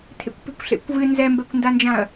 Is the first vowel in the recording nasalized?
no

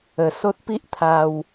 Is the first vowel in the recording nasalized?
no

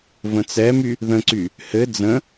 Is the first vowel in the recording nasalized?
yes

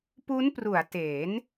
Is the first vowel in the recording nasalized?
no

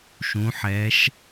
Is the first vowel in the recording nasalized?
yes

